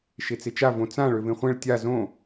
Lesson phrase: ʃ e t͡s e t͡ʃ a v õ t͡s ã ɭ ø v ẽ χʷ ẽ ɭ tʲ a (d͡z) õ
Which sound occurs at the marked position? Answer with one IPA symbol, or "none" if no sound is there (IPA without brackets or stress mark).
z